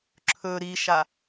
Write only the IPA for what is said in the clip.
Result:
ǁʰ ɵ ɾ i ʃ a

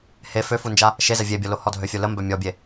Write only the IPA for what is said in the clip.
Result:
h e f ø f u n d͡ʒ a | ʃ e z ɛ vʲ e bʲ ɔ l o h ɔ dʱ ø fʲ o l ə m b œ mʲ ɔ bʲ e

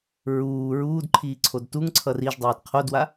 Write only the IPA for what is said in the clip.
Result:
ɹ uː ɹ uː d ǃʰ iː ǀʰ o d t u ŋ ǀʰ ʌ r i ʒ dˤ iː d qʰ o d w a

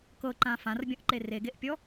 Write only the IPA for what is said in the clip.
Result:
k ɤ ǃ ã f ã r bʲ ɔ̃ ʔ ǃ e r e ɡ e ʔ pʲ ɔ

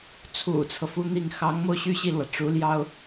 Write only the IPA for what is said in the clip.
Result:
t͡sʰ ṵ˨˩ t͡sʰ ɤ˦ f u˥ n̪ i˥˩ ŋ x ɑ˧˥ ŋ m o˧ ʊ̯ ɕ y˥˧ ɕ i˥˩ l w ä˩ ʈ͡ʂ u˧˥ l j ɑ˥ ʊ̯

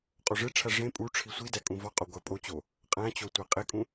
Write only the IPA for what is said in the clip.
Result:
qʼ o ʐ e ʈ͡ʂʰ æ ʐ ẽ pʼ u ʈ͡ʂʰ i sʷ i d æ kʼ ũ v ɒ qʼ o ɡʷ æ pʼ o t͡ɕ o | qʼ æ̃ t͡ɕ o tʷ æ qʼ e kʼ ũ

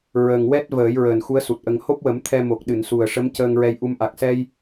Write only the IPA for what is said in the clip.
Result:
ɹ ə˨˩ ŋ w ɛ˦˥ t̚ v əː˨˩˦ j ɹ əː˨˩ n x u˧˥ ə̯ s u˨˩ t̚ ʔ ə˧ ŋ h o˦˥ p̚ w ə˨˩˦ m t̪ʰ ɛ˧ m o˨˩ k̚ ɗ ɨ˨˩˨ n s u˨˩ ə̯ ʂ ə˧˥ m c əː˧ ŋ ɹ ɛ˧ j ʔ u˧ m ʔ a˨˩ k̚ s ɛ˧ j

